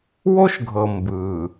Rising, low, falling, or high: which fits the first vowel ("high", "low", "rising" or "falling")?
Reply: high